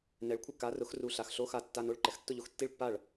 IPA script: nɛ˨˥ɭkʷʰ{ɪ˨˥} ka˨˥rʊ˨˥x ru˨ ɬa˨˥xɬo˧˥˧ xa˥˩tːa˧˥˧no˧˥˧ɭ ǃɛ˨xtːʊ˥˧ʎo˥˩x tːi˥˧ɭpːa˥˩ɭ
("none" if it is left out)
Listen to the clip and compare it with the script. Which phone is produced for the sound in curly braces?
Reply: ɪ˥˧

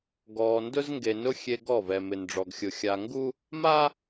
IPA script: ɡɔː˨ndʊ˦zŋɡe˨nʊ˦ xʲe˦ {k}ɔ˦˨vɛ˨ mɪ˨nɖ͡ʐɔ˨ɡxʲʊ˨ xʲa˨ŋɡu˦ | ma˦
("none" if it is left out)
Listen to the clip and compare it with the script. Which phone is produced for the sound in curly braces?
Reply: ɡ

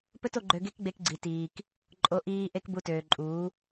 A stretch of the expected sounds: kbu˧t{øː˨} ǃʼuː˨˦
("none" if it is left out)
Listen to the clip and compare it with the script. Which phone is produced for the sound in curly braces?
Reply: øː˨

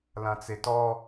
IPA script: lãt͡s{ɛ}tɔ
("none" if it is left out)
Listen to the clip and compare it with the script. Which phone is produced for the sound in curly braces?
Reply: e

